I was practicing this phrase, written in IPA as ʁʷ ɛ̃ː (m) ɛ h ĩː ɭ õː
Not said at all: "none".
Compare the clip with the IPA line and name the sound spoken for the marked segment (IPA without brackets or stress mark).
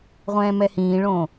m